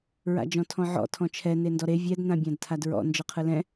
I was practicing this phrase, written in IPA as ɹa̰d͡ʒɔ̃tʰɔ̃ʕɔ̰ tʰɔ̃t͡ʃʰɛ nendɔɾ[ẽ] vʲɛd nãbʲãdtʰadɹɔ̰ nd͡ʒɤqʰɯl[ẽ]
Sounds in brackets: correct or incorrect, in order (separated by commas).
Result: incorrect, incorrect